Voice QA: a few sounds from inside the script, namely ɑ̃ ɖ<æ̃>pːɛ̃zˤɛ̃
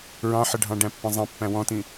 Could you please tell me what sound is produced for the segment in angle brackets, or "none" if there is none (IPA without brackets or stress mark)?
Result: æ̃